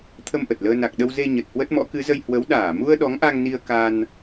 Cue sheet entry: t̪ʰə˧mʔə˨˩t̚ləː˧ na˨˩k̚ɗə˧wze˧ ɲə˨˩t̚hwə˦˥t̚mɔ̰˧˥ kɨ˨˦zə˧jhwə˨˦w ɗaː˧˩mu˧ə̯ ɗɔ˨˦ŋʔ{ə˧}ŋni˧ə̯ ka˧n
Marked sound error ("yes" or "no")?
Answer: yes